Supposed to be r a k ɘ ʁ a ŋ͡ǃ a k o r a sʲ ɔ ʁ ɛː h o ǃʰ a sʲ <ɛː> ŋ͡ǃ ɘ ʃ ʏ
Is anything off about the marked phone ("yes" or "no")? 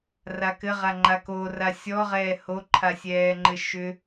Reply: no